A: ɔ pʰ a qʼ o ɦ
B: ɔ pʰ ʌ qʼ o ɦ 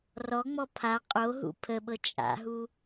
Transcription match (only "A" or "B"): A